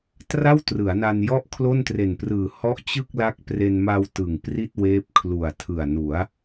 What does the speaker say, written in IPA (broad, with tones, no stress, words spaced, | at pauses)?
tra˥˩wtrɯ˩˦a̯na˧n jɔ˥˩ʔkʰlo˥˩n tre˨˩nprɯː˨˩ hɔ˦˥ʔ t͡ɕɯ˥˩k̚la˦˥k̚pre˧n ma˧w tɯ˨˩ŋ pri˥˩t̚weː˦˥p̚kʰlu˨˩a̯tʰɯ˨˩a̯ nu˩˦a̯